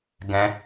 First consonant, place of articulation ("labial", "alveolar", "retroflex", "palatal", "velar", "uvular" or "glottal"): velar